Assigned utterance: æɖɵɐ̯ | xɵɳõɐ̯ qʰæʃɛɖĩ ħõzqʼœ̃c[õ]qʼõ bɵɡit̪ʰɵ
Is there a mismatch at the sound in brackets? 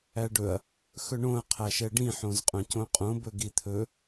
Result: no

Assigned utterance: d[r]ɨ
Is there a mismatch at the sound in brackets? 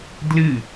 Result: yes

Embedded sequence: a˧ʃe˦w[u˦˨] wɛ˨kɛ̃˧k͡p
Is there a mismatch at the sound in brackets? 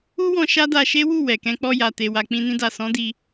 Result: no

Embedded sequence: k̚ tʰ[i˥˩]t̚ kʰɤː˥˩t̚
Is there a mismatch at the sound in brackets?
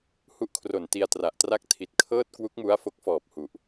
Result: yes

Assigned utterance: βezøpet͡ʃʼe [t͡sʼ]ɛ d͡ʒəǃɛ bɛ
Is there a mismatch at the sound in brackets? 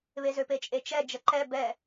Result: yes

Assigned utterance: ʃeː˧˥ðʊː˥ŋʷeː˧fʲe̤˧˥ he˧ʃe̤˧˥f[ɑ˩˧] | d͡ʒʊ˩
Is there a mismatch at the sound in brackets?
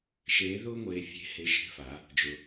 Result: yes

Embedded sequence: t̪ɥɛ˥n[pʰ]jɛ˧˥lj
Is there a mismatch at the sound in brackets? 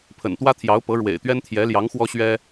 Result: yes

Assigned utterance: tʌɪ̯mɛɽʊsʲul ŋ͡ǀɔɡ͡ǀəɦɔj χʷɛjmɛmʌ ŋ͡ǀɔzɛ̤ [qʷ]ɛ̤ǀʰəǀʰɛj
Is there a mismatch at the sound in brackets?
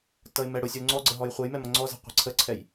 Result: no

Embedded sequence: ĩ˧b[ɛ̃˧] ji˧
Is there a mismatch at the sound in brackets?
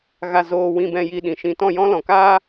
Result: no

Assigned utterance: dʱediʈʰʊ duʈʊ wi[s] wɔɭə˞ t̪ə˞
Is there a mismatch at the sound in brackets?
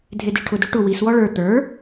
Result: no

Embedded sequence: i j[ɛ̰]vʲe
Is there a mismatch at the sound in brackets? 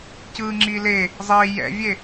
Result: no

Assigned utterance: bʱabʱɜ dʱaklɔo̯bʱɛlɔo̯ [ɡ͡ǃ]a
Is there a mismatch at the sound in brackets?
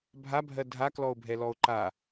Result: yes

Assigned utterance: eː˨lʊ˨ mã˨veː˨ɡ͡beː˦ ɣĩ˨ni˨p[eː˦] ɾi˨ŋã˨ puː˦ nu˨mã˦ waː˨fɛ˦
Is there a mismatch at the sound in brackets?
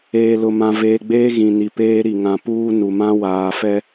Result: no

